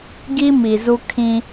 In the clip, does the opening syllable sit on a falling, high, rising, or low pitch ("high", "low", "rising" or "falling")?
high